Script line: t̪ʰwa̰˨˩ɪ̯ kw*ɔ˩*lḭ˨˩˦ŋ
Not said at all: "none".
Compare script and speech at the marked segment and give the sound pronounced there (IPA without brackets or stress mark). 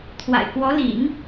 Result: ɔ˧˥